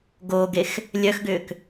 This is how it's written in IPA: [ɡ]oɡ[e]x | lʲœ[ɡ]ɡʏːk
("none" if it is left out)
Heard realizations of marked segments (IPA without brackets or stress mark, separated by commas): ɡ, e, x